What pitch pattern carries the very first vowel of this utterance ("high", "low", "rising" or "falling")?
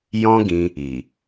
high